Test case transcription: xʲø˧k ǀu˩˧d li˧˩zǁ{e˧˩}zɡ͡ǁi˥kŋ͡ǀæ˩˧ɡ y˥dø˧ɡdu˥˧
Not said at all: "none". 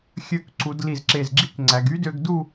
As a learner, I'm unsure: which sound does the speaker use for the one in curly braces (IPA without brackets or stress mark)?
e˧˩